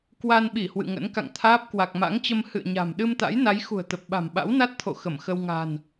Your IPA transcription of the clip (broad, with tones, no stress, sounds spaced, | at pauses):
k w a˧ n ɓ i˧˩ h w ɨ̰˧˨ ŋ ə̰˧˥ n k a̰˧˨ ŋ t̪ʰ aː˦˥ p̚ k w a˨˩ k̚ m a̰˧˥ ŋ t͡ɕ ə˧ m h ɨ̰˧˨ ə̯ ɲ a̤˨˩ m ɗ ɨ˧ m t̪ a̰˧˥ j n a˨˦ j x ṳ˨˩ ə̯ t̪ ə˨˩ p̚ ɓ a̤˨˩ m ɓ a̰˧˥ w n a˦˥ t̚ t̪ʰ o̰˧˨ x ə˧˩ m x ə˧ w ŋ a̤˨˩ n